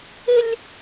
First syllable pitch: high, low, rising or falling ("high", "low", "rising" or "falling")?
high